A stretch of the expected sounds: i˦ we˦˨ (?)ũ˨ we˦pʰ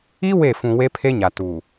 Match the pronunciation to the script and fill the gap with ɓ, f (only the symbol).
f